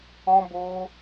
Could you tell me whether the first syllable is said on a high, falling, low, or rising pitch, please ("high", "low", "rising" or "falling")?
high